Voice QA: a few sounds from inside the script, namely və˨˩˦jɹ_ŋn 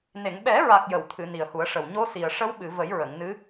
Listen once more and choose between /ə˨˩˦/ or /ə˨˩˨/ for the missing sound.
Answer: ə˨˩˨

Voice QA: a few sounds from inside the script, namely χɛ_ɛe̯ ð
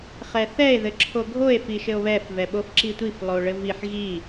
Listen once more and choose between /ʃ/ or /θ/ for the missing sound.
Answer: θ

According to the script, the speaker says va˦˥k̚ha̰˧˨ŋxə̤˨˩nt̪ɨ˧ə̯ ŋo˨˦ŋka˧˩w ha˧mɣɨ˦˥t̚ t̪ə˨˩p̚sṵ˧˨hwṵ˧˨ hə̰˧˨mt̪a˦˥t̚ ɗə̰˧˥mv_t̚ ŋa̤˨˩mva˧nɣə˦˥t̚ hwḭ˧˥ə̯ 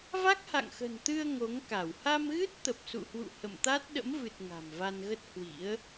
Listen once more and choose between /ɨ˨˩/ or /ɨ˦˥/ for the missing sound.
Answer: ɨ˨˩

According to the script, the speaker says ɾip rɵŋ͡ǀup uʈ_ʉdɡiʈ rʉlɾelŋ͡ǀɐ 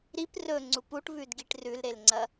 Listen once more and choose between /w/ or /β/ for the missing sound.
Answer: β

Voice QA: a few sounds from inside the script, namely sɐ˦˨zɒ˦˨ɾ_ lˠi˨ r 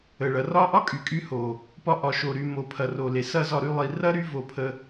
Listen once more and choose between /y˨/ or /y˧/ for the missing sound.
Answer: y˧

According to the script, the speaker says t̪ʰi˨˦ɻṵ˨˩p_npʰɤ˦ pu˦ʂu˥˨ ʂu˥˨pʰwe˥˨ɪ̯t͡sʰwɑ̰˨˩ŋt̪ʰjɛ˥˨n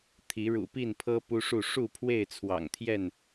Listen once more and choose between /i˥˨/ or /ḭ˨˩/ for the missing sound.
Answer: i˥˨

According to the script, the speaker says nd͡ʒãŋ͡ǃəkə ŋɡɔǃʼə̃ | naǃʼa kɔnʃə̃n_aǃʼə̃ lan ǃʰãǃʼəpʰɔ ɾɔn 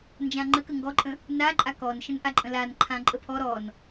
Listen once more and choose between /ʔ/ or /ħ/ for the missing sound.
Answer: ʔ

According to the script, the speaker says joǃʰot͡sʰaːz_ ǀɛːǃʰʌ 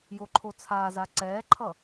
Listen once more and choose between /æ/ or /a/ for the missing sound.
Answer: a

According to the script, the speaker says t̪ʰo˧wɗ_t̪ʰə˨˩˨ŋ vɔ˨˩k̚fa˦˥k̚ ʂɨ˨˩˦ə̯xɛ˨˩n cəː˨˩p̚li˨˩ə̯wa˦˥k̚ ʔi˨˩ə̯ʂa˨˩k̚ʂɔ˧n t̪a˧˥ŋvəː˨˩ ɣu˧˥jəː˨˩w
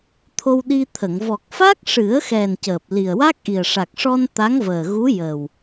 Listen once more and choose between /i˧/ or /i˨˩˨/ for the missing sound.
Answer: i˧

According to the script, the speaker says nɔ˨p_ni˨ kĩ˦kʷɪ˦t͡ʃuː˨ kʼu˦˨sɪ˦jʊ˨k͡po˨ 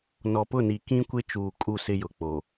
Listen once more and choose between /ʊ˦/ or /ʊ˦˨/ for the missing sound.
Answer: ʊ˦˨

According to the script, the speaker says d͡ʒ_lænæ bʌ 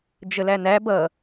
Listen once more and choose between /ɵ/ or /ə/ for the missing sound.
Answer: ə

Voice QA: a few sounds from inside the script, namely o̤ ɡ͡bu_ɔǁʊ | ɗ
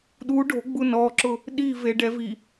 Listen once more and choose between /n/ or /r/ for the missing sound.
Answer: n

